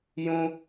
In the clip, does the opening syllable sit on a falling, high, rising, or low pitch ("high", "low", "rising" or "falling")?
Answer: high